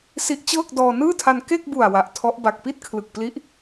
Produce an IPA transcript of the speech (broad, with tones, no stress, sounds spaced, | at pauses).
s i˦˥ ʔ t͡ɕ ɤː˥˩ k̚ d ɔː˧ n ɯː˥˩ tʰ a˧ n k e˥˩ k̚ b u˨˩ a̯ w a˨˩ ʔ tʰ ɔ˦˥ ʔ b a˨˩ k̚ p i˥˩ t̚ kʰ l ɯ˨˩ k̚ p l i˦˥ ʔ